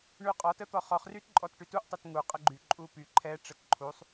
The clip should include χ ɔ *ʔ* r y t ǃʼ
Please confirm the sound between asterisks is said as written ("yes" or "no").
no